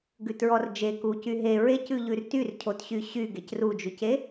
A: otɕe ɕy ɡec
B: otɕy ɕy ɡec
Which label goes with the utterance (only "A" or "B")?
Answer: B